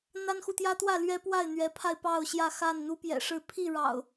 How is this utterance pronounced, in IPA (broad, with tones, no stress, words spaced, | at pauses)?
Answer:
n̪a˦nxu˨t̪jä˦t̪wä˥˨ lɥɛ˦pwa˥˨ɪ̯n̪ɥɛ˨˦pʰa˧ɪ̯ pɑ˥˨ʊ̯ɕjä˥˨xa˥˨n n̪u˦pjɛ̰˨˩ʂɻ̩˥˨ pʰi˥˨ɻɑ̰˨˩ʊ̯